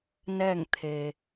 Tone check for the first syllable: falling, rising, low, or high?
falling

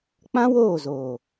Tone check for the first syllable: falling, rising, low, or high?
high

